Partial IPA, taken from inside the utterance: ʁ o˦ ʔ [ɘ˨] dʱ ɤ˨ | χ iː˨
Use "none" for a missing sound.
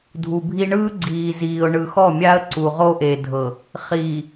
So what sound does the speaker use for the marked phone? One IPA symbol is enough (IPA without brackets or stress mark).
e˨